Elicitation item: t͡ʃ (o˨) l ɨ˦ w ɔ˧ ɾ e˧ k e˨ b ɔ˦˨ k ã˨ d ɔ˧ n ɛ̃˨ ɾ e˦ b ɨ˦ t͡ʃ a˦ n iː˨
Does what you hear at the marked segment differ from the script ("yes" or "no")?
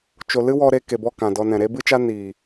no